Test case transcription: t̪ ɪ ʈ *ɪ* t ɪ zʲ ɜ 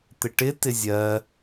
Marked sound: correct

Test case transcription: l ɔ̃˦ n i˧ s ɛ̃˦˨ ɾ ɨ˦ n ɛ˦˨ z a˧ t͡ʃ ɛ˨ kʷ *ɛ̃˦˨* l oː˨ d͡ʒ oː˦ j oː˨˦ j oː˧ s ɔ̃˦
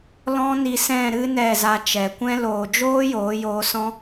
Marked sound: incorrect: ɛ̃˧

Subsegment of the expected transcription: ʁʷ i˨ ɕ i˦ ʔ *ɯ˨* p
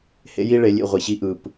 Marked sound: correct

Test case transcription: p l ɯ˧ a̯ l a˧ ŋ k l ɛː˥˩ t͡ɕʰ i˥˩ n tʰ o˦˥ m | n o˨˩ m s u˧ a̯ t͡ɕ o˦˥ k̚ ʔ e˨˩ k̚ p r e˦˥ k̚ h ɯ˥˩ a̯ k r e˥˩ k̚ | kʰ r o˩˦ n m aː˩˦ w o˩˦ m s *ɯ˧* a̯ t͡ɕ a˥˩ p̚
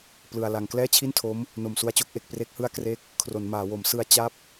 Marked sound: correct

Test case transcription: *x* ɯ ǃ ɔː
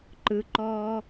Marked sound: incorrect: ǃ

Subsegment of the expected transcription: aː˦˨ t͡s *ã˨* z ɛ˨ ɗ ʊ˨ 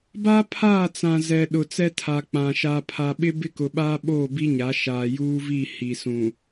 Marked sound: correct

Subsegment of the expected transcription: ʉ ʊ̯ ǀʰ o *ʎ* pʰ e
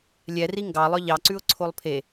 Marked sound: incorrect: lˠ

